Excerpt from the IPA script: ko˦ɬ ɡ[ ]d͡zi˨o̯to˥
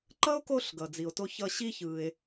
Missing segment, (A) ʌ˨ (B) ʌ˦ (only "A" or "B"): A